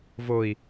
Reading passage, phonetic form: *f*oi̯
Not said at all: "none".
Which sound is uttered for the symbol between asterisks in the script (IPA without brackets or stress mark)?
v